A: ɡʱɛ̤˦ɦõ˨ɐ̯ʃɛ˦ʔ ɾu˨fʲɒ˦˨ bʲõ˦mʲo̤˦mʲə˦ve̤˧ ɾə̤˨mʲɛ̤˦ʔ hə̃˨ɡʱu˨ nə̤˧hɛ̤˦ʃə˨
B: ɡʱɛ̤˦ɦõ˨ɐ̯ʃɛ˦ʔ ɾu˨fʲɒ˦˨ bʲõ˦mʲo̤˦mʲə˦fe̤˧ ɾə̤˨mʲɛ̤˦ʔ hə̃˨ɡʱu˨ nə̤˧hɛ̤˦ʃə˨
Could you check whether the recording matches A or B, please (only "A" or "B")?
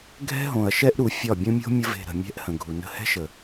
A